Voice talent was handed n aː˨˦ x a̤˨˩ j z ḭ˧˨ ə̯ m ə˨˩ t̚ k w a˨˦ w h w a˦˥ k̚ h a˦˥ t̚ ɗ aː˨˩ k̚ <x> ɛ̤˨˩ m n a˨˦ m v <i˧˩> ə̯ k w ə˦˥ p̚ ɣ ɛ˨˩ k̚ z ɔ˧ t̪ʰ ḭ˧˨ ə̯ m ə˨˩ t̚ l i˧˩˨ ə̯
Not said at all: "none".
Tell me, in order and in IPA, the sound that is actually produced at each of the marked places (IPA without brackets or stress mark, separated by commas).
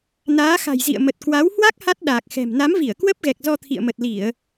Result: x, i˧˩